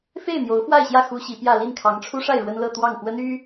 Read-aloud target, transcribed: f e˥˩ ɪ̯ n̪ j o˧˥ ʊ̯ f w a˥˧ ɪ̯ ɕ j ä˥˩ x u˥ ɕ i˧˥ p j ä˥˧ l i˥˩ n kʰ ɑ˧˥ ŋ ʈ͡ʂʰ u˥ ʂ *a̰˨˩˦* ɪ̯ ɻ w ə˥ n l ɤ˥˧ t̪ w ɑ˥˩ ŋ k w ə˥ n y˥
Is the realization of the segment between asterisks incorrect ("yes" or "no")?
yes